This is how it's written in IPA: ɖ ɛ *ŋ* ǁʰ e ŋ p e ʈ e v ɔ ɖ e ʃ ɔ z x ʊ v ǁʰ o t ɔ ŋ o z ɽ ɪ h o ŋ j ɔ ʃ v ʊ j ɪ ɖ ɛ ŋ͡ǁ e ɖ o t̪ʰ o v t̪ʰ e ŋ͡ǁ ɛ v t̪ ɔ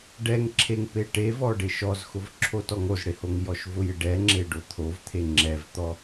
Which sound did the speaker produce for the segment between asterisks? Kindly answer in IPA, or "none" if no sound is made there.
ŋ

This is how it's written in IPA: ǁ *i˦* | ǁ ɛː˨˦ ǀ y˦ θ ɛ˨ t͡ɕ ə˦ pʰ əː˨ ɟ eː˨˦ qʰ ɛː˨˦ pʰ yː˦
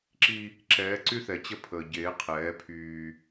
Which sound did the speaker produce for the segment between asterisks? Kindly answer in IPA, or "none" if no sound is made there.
i˦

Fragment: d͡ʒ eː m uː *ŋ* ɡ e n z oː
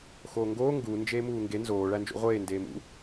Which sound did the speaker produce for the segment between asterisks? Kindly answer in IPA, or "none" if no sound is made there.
ŋ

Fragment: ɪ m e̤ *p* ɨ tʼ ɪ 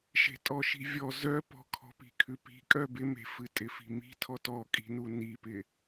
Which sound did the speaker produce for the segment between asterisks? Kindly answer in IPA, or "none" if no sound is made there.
f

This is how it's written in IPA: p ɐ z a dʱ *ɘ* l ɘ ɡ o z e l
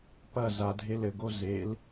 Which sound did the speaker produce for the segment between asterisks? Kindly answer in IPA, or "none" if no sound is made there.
e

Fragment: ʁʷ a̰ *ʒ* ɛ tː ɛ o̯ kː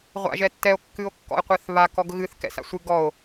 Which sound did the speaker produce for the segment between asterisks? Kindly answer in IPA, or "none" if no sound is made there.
ʒ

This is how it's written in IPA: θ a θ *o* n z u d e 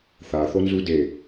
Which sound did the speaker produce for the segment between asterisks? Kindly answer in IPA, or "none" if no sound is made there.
o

